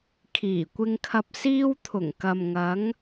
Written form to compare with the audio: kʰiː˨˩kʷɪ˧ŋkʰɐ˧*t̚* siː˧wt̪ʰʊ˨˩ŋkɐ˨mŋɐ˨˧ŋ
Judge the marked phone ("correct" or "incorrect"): incorrect